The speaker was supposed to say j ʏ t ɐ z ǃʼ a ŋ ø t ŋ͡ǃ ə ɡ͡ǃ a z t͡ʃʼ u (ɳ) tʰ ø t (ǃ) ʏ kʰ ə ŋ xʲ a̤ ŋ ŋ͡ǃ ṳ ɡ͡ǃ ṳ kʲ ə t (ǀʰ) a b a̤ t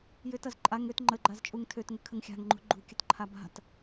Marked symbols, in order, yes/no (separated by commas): no, no, no